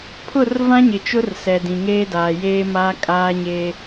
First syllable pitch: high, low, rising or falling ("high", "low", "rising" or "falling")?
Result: falling